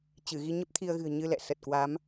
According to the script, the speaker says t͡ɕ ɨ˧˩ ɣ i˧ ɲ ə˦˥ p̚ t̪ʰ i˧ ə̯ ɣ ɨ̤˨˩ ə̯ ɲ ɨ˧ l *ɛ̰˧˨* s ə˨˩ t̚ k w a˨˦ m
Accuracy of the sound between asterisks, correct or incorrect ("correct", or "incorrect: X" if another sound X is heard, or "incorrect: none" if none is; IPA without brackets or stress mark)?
correct